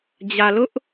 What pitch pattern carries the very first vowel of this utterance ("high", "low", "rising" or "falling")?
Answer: low